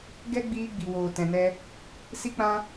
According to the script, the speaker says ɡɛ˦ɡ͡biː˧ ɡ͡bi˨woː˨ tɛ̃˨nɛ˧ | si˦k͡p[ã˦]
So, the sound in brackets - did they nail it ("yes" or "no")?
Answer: yes